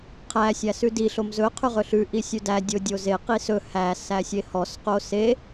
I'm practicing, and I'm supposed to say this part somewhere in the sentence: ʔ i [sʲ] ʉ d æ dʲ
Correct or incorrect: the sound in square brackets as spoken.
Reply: correct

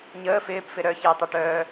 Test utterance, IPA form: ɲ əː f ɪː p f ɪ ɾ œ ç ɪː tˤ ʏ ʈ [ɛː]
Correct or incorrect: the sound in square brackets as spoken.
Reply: incorrect: œː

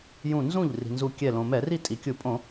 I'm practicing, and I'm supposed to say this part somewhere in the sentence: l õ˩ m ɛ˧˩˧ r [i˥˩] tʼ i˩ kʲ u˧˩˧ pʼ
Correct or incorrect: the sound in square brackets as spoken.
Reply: correct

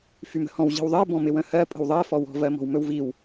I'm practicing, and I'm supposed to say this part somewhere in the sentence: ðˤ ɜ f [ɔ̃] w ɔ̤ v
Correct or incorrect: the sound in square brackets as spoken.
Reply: incorrect: ɔ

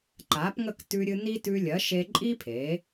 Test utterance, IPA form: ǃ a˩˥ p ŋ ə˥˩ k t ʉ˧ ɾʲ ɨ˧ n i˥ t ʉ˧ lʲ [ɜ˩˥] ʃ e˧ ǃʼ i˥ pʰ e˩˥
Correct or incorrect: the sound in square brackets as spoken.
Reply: correct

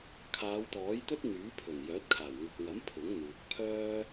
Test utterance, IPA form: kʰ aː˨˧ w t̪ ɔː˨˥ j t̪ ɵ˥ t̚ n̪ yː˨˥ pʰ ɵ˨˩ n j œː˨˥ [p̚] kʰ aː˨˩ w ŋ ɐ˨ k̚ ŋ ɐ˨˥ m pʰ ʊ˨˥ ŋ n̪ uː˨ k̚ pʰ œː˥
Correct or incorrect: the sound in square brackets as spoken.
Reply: incorrect: t̚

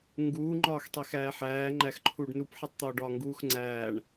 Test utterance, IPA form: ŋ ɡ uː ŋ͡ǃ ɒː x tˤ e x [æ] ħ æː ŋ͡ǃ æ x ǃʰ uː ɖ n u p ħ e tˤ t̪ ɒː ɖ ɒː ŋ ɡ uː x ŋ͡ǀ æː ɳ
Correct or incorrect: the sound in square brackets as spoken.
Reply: incorrect: æː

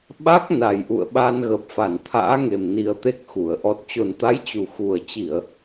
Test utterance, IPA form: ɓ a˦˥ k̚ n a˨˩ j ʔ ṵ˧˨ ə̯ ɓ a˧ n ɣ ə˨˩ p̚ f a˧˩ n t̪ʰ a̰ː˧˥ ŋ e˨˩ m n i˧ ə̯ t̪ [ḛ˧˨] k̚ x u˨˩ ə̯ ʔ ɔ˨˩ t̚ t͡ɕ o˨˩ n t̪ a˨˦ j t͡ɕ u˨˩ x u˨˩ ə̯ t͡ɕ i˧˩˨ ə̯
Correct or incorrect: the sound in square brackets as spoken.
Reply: incorrect: e˦˥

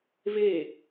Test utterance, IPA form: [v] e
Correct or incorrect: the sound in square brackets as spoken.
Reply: correct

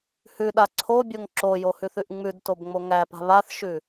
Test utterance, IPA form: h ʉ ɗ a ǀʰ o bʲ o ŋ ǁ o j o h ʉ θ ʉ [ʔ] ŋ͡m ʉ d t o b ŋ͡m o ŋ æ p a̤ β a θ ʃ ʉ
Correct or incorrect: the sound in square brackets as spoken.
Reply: correct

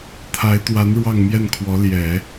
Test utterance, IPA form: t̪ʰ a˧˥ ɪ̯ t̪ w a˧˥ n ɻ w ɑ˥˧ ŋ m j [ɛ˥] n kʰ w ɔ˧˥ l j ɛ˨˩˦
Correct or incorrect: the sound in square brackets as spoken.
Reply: incorrect: ɛ˥˩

